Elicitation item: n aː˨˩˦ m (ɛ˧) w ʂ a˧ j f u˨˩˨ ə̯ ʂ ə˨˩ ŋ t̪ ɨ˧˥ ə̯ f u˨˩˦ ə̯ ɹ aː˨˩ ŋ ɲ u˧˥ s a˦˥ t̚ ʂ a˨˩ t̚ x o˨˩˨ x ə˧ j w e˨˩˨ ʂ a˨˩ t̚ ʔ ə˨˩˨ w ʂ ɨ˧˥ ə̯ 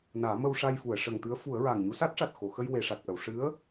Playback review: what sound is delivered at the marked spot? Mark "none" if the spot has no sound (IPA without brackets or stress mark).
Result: ə˧